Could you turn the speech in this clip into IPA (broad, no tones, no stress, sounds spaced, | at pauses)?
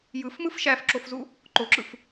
j ɯ f m ɯ f ʃ æ f ǁ o f z u | ǃ o ǁ ɯ f